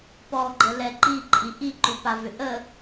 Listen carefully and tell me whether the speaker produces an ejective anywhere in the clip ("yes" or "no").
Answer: yes